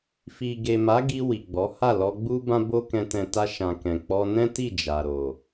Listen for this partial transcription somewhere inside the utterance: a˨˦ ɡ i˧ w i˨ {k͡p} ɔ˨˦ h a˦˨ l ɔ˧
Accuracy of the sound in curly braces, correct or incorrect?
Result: incorrect